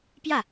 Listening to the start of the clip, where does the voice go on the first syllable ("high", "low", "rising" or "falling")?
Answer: falling